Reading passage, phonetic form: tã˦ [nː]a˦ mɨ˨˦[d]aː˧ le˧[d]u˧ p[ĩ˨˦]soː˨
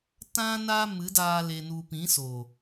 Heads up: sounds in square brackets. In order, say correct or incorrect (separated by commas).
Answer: incorrect, correct, incorrect, correct